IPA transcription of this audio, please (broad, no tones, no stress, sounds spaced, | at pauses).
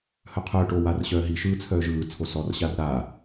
h œ qʰ œː ʈ o w a r ɕ œː ɦ i ʃ ɯː t͡sʰ œː ʒ ɯː t͡sʰ o s ɔ r ɕ a r ɾ aː